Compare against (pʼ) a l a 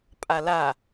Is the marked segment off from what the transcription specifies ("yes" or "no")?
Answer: no